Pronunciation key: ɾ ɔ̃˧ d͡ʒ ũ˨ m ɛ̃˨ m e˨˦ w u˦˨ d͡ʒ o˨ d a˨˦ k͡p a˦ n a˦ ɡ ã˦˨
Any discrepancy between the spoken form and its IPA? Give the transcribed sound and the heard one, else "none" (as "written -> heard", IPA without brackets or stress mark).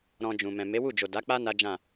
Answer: ɡ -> d͡ʒ